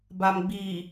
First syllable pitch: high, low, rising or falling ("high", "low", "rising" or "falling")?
low